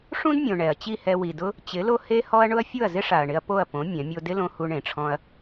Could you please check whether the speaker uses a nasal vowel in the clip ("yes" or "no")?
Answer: yes